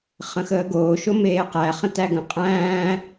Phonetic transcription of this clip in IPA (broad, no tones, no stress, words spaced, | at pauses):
χə̃xəːɡoːʃo meːqæ χə̃tæɡə̃ qʼæ̃ː